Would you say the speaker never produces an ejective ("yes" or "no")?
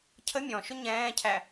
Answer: yes